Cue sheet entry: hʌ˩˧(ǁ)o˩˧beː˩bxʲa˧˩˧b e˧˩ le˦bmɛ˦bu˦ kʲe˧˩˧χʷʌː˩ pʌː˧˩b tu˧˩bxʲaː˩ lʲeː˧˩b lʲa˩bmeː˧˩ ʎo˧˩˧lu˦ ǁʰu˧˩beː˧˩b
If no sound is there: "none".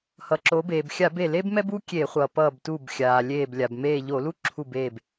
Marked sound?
ǁ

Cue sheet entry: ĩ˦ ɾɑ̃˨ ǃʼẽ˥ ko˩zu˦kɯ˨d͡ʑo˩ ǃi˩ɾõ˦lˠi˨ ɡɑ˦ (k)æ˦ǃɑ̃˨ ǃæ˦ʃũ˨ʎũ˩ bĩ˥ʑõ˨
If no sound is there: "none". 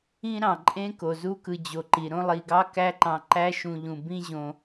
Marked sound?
k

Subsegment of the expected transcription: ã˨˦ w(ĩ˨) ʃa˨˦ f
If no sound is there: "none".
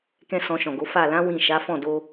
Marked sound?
ĩ˦˨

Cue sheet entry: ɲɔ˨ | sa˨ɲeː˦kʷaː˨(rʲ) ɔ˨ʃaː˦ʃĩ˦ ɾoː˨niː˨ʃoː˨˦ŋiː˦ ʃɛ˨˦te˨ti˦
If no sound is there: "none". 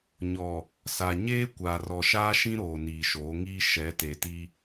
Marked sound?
r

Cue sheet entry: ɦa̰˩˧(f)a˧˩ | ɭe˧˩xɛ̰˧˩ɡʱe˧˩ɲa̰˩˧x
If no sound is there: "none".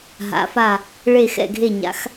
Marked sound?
f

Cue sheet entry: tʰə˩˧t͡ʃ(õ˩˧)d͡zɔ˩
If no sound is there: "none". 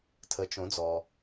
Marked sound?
õ˩˧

